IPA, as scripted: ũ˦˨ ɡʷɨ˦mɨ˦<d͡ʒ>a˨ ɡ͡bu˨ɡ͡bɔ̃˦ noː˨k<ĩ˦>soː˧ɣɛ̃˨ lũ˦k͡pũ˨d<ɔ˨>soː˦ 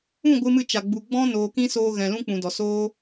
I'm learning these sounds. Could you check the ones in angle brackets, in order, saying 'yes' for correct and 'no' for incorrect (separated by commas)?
no, yes, yes